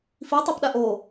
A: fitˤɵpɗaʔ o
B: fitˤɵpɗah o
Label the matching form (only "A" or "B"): A